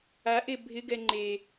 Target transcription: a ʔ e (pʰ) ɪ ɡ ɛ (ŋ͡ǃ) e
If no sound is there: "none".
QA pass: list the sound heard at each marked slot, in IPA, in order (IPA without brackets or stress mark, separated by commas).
bʱ, ŋ͡ǃ